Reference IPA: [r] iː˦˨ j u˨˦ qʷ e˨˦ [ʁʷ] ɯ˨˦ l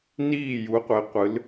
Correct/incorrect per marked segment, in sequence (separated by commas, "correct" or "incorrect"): incorrect, incorrect